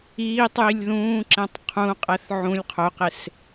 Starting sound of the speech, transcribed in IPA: iː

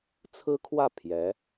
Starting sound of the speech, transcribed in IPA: t͡sʰ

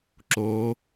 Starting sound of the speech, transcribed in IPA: ǁ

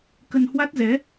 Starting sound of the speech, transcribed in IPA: k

